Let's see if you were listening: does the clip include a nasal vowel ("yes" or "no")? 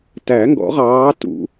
no